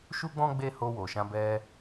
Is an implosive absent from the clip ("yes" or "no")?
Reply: yes